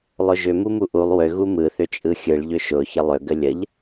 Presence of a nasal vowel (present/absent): absent